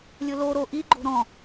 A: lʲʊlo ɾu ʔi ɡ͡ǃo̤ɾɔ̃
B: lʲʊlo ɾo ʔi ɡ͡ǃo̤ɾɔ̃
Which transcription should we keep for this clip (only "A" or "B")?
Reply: B